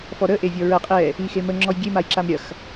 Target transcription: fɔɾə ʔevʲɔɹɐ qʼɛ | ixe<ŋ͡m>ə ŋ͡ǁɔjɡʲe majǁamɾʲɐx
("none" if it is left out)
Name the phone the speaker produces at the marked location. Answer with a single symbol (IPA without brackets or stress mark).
m